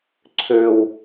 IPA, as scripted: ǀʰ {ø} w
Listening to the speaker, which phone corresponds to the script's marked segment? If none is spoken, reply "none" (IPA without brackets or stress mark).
ø